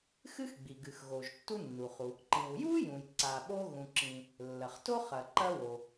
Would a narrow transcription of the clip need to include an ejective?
no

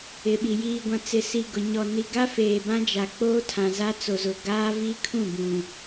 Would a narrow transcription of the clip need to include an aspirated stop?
yes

